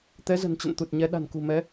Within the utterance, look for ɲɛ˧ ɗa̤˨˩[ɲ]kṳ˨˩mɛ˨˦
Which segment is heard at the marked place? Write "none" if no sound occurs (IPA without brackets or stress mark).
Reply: n